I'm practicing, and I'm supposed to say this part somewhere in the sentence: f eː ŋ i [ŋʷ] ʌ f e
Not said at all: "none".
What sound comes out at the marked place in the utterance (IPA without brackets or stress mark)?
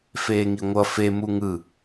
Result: ŋʷ